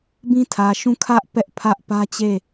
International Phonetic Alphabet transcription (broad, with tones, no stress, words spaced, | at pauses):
bĩ˦tʰä˨ʃũ˦˨ kʰä˦ʔ pɛ˦ʔpʰä˦ʔpä˦t͡ɕe˦˨